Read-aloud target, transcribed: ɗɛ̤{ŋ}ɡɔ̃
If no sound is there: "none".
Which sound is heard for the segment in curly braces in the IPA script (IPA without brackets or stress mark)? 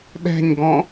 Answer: ɲ